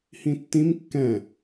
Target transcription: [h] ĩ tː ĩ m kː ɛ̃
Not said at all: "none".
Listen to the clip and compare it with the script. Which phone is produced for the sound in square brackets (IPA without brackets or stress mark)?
h